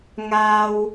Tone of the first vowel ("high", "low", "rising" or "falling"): high